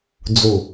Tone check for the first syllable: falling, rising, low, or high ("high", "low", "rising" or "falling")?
low